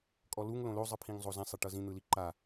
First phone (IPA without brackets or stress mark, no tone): kʼ